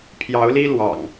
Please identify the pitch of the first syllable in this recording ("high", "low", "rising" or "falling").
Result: rising